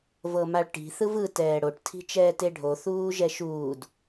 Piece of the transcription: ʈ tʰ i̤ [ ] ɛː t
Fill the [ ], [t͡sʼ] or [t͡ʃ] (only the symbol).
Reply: t͡ʃ